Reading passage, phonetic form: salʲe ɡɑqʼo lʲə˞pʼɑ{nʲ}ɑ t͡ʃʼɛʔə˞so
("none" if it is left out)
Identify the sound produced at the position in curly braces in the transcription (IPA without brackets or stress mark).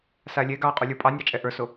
nʲ